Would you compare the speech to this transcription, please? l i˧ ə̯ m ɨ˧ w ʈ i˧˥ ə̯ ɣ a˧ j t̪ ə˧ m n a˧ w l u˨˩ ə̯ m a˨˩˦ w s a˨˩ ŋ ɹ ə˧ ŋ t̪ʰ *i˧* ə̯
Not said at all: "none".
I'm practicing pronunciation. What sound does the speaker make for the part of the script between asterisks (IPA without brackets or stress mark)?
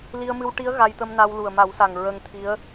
i˧˥